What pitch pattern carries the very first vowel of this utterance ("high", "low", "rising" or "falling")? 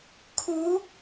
rising